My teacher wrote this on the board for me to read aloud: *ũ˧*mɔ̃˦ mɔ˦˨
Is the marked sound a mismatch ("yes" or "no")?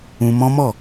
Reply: no